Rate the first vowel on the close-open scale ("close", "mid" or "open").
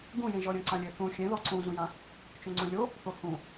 close